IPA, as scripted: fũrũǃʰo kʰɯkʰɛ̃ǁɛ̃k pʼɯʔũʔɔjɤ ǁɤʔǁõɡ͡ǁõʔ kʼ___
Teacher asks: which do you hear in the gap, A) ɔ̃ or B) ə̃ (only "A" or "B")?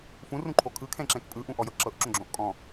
A